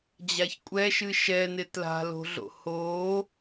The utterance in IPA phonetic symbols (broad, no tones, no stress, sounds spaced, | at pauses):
d͡ʑ a ç kʷʼ ɛ ʃ ɨ ʃ ɛ n ɪ t l a̤ l o̤ ɮ o̰ h o